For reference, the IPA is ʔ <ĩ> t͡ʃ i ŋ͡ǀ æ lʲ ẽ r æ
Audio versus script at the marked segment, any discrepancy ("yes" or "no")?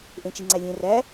yes